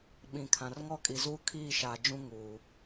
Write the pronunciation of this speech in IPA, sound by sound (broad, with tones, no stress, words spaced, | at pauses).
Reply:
ɓĩ˨kʰã˨r ŋɔ˦˨kʼi˨zuː˦ kʰiː˦˨ʃaː˨d͡ʒũ˦ ŋuː˨